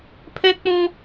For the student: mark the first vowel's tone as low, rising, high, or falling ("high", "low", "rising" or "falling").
high